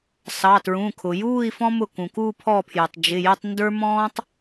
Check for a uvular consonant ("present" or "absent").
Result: absent